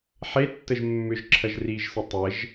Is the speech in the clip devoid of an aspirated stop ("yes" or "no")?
no